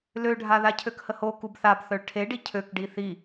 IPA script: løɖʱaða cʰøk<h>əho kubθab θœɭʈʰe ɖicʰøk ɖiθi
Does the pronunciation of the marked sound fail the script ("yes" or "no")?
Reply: no